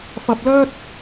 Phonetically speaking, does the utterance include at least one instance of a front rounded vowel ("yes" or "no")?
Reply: yes